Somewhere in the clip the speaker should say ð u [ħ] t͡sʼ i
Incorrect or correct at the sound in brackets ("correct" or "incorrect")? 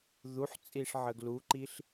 correct